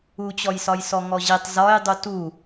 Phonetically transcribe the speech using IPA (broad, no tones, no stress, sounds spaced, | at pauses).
u t͡ɕ ɔ j s ɒ j s ɔ ŋ ɔ ʑ i tˤ z ɒ j dˤ u t u